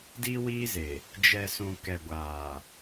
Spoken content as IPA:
d i˦ w iː˦ z e˨ | d͡ʒ ɛ˨ s ũ˨ k ɛ˨ ɡʷ aː˨

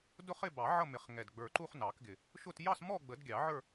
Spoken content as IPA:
d ʊ˥˧ χ ɪ˥˧ b ɑ˨˩˦ ʕ ʌ˥˧ m ɪ˨˩˦ χ ŋ ɛ˨˩ d ɡ͡b ə˞˨˩ ǃ u˥˧ χ n ɑ˨˩˦ k ɡ ɪ˨˩ | ʃ ʊ˥˧ t j ɑ˥˧ s m ɔ˥˧ ɡ͡b ə˨˩˦ d ɡʲ ɑ˨˩˦ ʕ ə˞˥˧

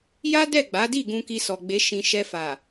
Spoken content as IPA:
j a˦ d ɛ˦˨ ɡ͡b a˨˦ d i˦˨ ɡ ũ˧ k i˧ s ɔ˨ ɡ͡b e˨˦ ʃ ĩ˧ ʃ ɛ˧ f a˨

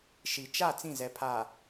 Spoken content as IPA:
ʃ i˨ t͡ʃ a˦˨ t͡s ĩ˦˨ z ɛ˨ pʰ a˨

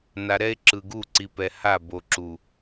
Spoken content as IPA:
n a˨ ɾ ɛ˦ e̯ ǁ ɯ˨ ɡ u˦˨ ǀ i˨ p ɛ˨ h a˦˨ b o˨ ǁ u˨

